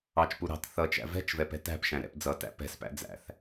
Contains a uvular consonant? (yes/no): no